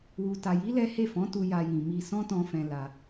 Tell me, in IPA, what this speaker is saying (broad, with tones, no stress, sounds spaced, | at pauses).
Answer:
w u˨ t a˨ j i˨˦ l ɛ˦ h e˦˨ f ɔ̃˨˦ t u˧ j a˧ j ĩ˨ m i˧ s ɔ̃˦ t ɔ̃˧ f ɛ̃˧ l a˧